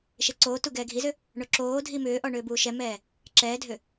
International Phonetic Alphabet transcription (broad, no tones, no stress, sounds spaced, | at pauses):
ʃ e ǀ oː t u ɡ ɛː ɡʱ i z ʏ | ɳ o ǁ oː dʱ i m ʏː ʔ ɔ ɳ ʏː b uː ʃ ɛ m ɛː | ǁ ɛː dʱ ʏ